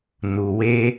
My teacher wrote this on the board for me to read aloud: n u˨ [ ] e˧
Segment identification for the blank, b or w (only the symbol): w